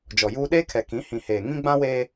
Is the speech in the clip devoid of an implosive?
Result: no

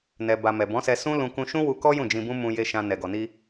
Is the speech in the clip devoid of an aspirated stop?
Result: yes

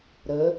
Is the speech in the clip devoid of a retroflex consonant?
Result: yes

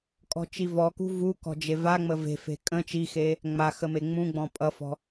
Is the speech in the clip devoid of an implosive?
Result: yes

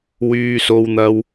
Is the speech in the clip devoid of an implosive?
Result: yes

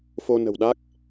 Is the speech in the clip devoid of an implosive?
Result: no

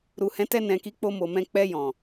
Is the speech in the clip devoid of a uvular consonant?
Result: yes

